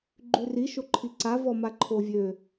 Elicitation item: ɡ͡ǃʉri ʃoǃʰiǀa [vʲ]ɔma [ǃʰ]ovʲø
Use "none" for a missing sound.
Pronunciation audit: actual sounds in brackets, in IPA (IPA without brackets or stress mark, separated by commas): v, ǃʰ